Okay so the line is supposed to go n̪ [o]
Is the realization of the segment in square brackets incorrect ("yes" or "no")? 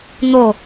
no